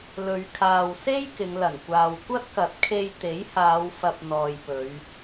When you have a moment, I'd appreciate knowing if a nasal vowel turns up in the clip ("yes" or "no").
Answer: no